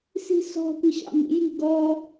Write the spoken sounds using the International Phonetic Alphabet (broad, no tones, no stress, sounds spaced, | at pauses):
s i̤ s ɔ̤ kʷ i ɕ ɑ̰ m ḭ j i̤ ɡ ɔ